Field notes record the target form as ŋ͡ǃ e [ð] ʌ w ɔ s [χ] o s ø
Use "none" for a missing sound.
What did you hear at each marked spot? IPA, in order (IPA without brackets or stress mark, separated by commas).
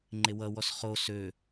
w, χ